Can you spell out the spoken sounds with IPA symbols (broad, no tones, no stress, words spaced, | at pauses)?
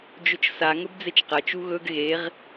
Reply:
d͡ʒɵt͡ʃsa ŋɵbd͡zet͡ʃqɐ t͡ʃuɣɵɡ ɣeʁ